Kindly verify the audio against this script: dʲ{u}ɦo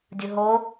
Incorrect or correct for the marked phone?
incorrect: ɯ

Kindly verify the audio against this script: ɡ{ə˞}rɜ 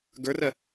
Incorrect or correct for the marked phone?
correct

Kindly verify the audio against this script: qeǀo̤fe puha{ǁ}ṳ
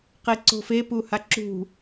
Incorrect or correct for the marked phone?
correct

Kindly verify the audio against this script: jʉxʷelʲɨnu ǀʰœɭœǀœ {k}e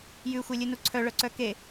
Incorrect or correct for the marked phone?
correct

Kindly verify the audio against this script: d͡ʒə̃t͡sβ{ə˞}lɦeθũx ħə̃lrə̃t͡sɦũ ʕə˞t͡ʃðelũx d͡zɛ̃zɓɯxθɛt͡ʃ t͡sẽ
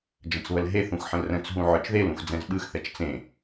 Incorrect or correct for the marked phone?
incorrect: ə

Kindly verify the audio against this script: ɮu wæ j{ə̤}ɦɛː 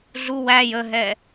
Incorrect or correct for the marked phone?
incorrect: ə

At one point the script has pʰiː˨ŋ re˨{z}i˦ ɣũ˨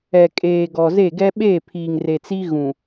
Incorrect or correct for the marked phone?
incorrect: t͡s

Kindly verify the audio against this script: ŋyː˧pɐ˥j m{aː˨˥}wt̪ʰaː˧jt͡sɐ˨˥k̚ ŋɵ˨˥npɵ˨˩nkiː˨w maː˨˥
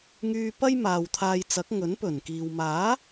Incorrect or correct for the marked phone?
incorrect: aː˨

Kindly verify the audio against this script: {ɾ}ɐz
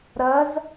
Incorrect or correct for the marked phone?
correct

